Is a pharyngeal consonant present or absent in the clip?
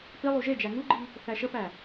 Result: absent